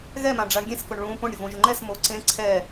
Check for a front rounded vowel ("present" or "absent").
absent